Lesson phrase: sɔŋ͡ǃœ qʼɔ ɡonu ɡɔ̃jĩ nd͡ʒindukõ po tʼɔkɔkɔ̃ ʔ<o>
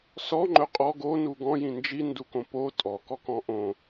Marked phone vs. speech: incorrect: õ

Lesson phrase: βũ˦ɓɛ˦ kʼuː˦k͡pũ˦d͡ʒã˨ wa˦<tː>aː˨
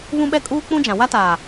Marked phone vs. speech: incorrect: t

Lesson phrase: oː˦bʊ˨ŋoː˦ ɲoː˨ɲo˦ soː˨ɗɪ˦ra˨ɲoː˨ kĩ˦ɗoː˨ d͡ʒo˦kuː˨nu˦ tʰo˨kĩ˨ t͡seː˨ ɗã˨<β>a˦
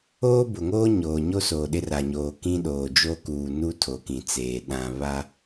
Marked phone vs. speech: correct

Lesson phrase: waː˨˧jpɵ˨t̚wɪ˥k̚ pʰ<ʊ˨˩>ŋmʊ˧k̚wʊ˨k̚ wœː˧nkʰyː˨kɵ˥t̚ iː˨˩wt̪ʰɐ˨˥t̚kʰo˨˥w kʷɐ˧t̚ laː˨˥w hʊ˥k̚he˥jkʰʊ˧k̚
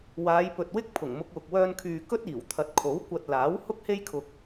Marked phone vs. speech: correct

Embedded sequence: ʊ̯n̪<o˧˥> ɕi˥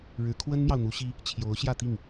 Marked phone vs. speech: incorrect: u˧˥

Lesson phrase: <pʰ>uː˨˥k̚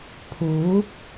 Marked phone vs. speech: correct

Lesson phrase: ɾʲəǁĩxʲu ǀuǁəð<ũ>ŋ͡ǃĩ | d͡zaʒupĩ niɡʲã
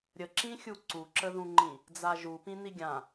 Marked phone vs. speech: correct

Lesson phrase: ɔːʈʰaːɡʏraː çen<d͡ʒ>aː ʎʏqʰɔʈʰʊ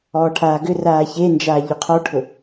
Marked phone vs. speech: correct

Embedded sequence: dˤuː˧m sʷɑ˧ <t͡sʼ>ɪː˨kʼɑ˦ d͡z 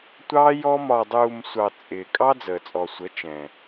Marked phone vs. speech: correct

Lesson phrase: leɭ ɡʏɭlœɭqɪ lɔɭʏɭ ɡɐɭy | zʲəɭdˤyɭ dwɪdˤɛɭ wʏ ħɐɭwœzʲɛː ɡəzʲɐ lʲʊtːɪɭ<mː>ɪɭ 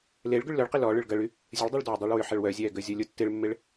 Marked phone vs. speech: correct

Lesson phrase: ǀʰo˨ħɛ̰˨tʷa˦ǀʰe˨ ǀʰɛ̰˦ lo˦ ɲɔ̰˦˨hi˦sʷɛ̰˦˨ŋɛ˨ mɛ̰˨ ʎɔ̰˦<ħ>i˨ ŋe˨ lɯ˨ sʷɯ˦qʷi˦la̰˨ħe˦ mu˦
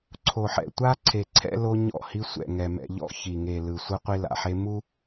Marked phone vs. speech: incorrect: ç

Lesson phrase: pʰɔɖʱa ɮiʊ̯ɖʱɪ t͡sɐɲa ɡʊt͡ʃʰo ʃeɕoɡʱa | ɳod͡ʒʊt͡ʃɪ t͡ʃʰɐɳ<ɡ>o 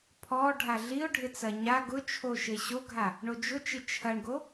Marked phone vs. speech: correct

